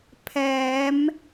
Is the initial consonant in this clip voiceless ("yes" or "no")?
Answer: yes